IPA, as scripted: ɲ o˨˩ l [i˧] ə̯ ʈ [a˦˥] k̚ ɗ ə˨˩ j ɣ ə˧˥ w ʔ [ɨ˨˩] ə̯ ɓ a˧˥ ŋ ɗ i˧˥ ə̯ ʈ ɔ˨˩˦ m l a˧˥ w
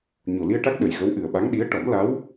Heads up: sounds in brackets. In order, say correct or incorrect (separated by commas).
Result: correct, correct, correct